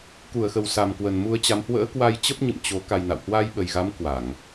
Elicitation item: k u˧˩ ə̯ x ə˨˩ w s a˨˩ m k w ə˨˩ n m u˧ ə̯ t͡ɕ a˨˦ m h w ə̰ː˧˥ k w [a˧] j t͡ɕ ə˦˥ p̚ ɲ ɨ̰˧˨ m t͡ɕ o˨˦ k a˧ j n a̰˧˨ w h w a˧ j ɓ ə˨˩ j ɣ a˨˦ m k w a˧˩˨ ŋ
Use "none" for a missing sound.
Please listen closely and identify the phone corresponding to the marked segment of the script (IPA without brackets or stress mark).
a˧